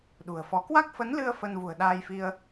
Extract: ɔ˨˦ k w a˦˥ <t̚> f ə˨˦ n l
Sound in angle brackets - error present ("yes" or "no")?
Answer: yes